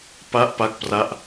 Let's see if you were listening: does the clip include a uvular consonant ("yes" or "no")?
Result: no